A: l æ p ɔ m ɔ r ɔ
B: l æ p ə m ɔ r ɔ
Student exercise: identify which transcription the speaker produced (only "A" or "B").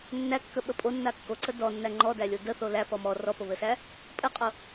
A